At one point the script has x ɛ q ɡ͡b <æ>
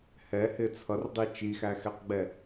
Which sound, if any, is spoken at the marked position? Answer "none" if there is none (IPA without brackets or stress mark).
ɛ